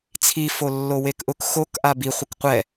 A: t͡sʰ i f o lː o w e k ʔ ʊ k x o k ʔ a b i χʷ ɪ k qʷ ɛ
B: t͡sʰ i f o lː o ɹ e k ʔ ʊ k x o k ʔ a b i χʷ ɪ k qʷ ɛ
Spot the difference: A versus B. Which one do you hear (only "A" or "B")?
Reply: A